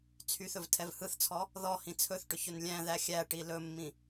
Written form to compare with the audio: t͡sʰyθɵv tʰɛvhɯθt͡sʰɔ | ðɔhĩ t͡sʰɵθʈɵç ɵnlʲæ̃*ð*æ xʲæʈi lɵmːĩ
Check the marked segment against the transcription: correct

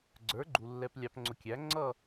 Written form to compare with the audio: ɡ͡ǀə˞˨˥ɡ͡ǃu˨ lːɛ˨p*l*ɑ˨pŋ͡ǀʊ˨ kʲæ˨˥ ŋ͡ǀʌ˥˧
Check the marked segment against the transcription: incorrect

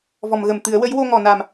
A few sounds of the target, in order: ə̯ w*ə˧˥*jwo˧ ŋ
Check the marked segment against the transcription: correct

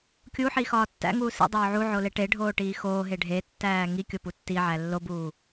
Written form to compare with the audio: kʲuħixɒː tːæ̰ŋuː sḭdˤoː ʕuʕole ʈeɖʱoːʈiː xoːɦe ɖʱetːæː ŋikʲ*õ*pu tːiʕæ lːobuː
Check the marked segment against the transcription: incorrect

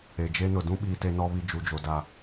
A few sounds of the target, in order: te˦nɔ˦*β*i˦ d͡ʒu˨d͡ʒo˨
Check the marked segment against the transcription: correct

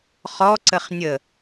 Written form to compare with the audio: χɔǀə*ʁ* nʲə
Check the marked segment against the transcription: incorrect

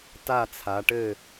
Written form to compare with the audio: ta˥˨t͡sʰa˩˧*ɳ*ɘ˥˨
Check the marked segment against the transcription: incorrect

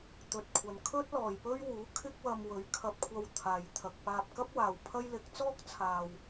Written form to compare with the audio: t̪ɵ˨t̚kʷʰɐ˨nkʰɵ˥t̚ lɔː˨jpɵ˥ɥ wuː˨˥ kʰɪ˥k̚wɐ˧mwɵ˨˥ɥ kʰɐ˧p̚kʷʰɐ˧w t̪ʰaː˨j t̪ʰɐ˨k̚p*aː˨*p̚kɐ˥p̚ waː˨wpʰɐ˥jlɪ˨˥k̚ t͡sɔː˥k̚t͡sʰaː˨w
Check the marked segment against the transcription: incorrect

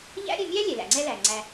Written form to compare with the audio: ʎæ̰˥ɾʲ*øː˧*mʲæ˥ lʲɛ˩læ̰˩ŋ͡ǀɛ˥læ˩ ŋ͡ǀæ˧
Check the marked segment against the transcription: incorrect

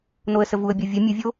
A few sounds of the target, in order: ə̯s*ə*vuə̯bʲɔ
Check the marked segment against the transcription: correct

